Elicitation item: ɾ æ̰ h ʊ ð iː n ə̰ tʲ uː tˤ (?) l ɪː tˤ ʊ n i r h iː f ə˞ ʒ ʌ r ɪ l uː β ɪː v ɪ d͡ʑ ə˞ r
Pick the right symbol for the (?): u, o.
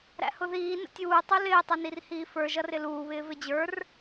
u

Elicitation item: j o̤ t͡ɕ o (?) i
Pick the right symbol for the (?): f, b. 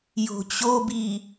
b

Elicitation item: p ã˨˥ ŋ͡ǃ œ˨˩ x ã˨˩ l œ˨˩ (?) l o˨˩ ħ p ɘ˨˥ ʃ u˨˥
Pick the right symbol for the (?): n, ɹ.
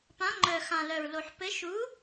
ɹ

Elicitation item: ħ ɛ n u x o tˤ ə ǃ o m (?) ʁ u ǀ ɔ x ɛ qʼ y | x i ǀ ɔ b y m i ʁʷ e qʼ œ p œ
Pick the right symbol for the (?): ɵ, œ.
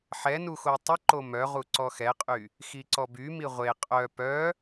œ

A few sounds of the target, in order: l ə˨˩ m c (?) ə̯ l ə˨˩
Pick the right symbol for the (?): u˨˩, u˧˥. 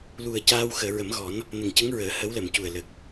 u˨˩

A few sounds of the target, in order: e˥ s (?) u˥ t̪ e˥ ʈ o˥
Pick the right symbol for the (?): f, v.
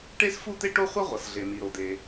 f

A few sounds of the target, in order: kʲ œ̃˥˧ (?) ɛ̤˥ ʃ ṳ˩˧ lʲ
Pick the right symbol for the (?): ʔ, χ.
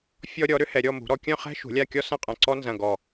χ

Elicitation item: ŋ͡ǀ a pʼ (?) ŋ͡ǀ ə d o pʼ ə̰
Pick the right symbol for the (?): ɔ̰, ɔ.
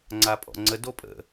ɔ̰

